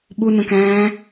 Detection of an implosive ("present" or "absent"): present